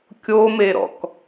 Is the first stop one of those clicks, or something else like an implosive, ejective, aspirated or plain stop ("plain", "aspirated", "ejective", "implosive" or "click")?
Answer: plain